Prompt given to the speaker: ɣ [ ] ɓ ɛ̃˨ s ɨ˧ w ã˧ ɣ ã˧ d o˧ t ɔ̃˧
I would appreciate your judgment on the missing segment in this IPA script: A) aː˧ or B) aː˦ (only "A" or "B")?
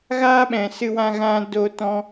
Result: B